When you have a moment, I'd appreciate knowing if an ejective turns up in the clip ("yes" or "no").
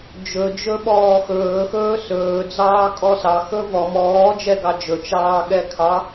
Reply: yes